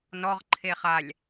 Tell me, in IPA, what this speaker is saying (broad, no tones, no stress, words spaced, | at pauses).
nɔʁ ǃʰeχalʲ